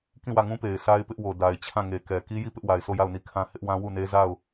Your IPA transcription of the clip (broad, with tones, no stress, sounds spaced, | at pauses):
k ĩ˦˨ w ä˦˨ ŋ ũ˦ p e˨ ɪ̯ s a˦ ɪ̯ p ɪ˦ ʔ w o˨ d a˨ ɪ̯ t͡ɕʰ ã˦˨ ŋ e˨ k ɛ˨ k i˦ j i˦˨ p ɪ˦ ʔ w a˨ ɪ̯ s o˦˨ j a˦˨ ʊ̯ n i˦˨ kʰ ã˦ h ɪ˦ ʔ w ã˦ w u˦˨ n e˦ z a˦˨ ʊ̯